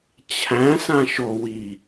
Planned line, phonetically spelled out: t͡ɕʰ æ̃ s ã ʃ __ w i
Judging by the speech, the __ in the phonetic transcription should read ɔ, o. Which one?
o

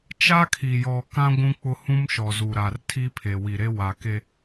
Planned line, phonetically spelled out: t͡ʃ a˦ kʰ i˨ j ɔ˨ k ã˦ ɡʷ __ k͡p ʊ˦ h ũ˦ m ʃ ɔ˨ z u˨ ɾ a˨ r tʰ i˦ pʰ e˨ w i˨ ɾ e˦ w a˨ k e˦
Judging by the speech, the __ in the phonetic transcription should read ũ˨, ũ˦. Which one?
ũ˦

